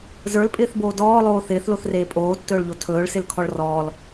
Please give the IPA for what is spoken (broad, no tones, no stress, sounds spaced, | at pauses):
z ə˞ l pʼ ɪː θ b oː d ɔː lˠ oː θ ɪː θ l o θ r eː pʼ oː tː ɵː ɭ ʎ o tʰ ɵː ɭ s ɪ l kʰ ɔ ɭ r ɔː l